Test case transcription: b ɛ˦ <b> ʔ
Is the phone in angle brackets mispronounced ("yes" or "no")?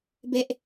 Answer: yes